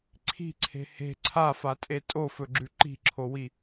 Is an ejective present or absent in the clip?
present